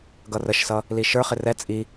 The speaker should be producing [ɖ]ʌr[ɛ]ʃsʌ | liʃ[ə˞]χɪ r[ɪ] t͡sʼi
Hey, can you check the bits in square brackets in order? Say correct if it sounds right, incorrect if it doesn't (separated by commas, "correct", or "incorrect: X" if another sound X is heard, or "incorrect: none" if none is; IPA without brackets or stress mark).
incorrect: ɡ, incorrect: ə, correct, incorrect: ɛ